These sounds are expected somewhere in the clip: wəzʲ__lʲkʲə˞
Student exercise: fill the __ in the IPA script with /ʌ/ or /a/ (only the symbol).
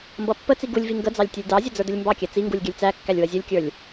ʌ